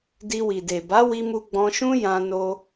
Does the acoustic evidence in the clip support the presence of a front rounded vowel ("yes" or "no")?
no